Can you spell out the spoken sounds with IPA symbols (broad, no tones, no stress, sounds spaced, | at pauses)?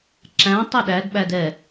ǁ æ̃ tˤ i ɗ æ d ɓ æ d ɛ